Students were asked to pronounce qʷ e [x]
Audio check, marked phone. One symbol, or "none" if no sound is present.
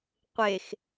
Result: x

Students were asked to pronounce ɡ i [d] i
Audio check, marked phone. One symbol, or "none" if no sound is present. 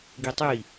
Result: tˤ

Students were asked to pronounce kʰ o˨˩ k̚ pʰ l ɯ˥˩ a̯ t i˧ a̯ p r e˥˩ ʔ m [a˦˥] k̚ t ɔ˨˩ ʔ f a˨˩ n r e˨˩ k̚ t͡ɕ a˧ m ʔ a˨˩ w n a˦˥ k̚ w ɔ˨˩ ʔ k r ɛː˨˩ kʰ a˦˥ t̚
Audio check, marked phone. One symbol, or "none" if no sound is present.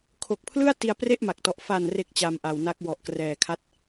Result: a˨˩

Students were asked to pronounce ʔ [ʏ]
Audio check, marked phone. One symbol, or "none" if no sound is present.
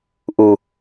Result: u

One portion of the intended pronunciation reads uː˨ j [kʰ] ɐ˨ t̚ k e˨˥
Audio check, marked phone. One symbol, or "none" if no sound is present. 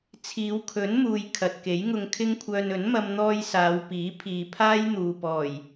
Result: kʰ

